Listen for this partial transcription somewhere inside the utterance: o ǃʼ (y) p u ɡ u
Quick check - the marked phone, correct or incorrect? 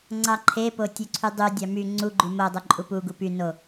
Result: incorrect